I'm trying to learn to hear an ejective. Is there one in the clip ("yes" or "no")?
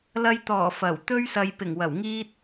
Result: no